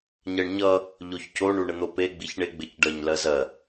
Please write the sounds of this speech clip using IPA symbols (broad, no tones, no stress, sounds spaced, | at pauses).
ɲ ɜ ɳ ɲ ʌ | ʎ o ç c o ɳ u ɳ ə n̪ o p e ɡ͡b i ç ɳ e ɡ͡b ɪ c ɖ ɜ ɲ l ɜ z ɜ